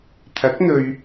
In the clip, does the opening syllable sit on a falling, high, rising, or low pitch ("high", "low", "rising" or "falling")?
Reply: rising